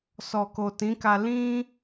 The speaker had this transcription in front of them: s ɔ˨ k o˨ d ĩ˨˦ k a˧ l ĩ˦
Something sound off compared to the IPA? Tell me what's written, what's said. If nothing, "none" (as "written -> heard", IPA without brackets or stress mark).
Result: d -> t